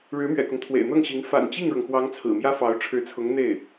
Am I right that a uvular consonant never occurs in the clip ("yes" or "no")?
yes